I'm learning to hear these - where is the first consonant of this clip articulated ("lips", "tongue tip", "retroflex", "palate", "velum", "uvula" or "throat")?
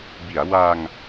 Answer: lips